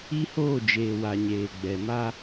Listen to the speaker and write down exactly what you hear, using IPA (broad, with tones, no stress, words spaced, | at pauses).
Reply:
i˦hoː˦˨d͡ʒeː˨wa˨ ɲeː˨ɡ͡bɛ˨ma˦